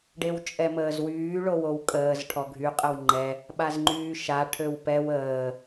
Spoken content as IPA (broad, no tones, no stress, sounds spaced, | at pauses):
ɖ e w t͡ʃʼ ɛ m əː z w yː ɭ o w o w kʼ əː z ʈʰ ɔ ɡʱ y qʼ ə w ŋ͡ǃ ɛ | ɓ a z ŋ͡ǃ yː ʃ a ʈʰ ø w p ɛ w əː